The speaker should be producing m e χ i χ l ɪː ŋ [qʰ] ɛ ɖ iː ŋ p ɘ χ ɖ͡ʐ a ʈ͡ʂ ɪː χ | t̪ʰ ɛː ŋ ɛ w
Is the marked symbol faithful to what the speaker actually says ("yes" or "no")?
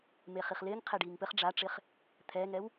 yes